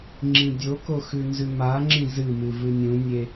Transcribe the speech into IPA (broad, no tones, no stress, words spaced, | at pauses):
ŋ͡ǁĩdʲoko xʉnzʉmaŋ͡ǁĩ zɨmɨ vɨnʲũnʲe